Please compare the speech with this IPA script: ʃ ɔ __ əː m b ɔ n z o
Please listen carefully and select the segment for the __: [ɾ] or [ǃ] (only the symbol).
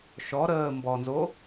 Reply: ɾ